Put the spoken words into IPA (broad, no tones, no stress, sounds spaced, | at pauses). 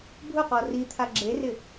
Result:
bʱ ʊ q ɔ r i t̪ʰ a ɡ͡ǁ e r ɪ